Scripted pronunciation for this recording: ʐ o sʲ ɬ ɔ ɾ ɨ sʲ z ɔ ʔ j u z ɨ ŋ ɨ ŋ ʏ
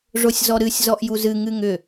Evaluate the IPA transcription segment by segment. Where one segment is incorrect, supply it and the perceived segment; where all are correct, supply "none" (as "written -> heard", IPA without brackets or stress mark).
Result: ɬ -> z